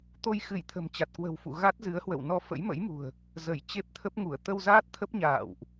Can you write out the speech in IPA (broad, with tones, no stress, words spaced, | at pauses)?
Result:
t̪o˧jxɨ˧˩j t̪ʰə̤˨˩mt͡ɕa˨˩t̚kwə̤˨˩wfṵ˧˨ ɣa˦˥t̚zɨ˨˦ə̯hwə̰˧˨w nɔ˧fə̰˧˥jmə̰˧˥jmṳ˨˩ə̯ | zə˧˩jt͡ɕe˦˥p̚t̪ʰə˦˥p̚ŋu˧˩ə̯ t̪ə˧wzaː˦˥t̚t̪ʰə˦˥p̚ ɲa̰ː˧˨wʔ